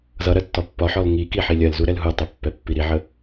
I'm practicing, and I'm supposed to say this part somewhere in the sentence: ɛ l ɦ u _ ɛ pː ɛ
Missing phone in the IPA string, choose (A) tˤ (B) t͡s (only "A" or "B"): A